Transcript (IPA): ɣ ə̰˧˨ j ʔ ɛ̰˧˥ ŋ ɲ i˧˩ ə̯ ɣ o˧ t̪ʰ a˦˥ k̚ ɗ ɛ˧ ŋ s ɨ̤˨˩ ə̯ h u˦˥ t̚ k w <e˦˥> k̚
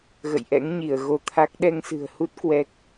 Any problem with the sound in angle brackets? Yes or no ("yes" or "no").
yes